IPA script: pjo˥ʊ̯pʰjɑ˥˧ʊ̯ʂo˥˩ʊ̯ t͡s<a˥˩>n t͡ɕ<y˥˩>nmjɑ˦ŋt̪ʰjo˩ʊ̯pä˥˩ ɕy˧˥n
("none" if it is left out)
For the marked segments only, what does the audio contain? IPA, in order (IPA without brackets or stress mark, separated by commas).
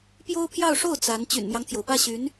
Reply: a˧˥, y̰˨˩